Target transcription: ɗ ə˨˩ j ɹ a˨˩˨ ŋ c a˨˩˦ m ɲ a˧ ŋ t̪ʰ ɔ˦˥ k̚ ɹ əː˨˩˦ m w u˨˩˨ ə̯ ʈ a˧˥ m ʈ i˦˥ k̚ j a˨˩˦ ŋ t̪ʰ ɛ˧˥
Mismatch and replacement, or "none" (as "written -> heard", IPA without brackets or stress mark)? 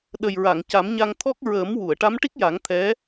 none